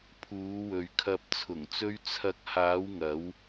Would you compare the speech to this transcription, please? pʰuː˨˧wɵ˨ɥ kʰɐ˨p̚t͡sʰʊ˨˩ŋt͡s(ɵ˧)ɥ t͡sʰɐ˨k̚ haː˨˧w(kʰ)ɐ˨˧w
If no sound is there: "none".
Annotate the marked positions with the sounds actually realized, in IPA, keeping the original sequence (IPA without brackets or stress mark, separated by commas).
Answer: ɵ˧, ŋ